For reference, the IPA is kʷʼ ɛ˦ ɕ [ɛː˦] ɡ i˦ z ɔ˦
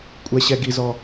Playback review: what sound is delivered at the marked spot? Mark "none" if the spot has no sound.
ɛ˦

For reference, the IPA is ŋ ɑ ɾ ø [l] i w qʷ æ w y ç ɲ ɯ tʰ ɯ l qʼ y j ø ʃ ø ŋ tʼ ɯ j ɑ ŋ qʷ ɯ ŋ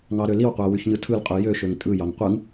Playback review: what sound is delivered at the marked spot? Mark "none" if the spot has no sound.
l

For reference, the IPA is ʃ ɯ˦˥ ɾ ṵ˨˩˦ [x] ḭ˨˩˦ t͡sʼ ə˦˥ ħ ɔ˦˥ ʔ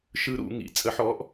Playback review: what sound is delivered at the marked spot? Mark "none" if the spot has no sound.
ŋ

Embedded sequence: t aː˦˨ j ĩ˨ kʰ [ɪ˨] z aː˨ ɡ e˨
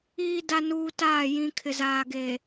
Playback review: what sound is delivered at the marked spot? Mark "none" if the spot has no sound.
ɪ˨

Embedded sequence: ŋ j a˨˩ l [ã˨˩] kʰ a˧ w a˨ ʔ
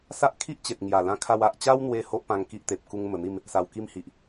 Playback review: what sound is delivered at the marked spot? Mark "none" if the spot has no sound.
ã˧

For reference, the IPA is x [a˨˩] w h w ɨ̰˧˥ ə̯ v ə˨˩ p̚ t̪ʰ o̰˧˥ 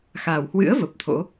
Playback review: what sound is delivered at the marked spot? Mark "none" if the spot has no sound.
a˨˩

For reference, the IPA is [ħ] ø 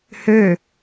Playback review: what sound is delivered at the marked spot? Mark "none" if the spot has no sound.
h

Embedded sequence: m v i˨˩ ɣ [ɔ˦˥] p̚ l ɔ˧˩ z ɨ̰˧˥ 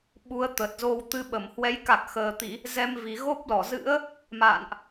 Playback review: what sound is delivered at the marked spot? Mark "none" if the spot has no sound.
o˦˥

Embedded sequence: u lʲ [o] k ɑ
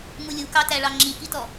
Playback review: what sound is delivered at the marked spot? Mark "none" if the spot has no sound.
u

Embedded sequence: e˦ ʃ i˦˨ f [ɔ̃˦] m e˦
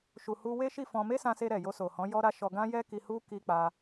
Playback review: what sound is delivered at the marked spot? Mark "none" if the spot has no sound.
ɔ̃˧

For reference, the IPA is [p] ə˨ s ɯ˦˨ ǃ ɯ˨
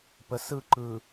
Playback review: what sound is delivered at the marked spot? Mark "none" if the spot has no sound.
p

